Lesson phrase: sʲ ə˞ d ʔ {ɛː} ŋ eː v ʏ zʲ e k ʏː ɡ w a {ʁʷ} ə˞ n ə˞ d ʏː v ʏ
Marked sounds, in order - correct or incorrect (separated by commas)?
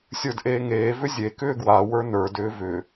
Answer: incorrect, incorrect